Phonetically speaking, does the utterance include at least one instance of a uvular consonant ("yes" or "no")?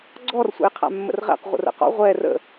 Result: yes